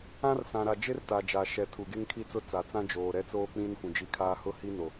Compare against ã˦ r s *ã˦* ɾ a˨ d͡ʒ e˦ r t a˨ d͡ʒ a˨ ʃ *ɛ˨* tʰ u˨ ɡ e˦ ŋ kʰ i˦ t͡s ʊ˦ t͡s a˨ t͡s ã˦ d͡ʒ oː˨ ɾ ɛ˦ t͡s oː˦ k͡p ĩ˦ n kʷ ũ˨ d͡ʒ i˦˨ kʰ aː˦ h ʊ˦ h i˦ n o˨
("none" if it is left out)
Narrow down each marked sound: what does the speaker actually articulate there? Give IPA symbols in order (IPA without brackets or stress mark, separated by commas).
ã˨, ɛ˨